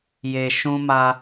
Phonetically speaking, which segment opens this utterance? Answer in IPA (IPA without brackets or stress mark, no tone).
j